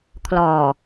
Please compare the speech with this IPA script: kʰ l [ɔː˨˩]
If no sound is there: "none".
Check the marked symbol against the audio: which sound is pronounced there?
ɔː˨˩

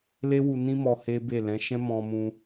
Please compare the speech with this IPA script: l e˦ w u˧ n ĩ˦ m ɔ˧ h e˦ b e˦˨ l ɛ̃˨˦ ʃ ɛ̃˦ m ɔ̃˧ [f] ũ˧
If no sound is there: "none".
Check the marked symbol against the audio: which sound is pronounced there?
m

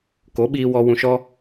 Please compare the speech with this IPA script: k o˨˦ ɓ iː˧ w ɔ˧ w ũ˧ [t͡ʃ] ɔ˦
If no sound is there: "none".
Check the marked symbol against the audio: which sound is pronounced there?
ʃ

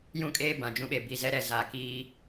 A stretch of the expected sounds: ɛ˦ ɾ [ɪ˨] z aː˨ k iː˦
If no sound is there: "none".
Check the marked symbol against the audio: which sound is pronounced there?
ɛ˨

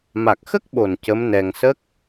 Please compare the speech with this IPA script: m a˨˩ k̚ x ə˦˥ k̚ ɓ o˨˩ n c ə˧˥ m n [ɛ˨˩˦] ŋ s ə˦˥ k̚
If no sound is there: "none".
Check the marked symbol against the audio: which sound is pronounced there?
ɛ˧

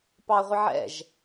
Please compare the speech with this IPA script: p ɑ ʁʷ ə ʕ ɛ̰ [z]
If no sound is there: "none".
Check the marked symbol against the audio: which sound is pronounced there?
ʒ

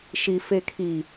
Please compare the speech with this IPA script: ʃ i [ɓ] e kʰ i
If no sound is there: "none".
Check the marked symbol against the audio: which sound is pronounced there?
f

